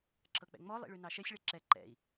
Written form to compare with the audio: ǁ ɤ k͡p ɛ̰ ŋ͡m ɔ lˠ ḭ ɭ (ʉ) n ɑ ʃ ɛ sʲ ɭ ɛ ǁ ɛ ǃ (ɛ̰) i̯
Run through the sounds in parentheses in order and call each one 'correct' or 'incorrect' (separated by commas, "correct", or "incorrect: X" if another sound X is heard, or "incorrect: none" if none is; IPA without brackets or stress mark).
correct, correct